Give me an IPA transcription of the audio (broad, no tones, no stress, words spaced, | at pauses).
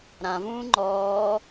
ɾãvũː ŋ͡ǃɔː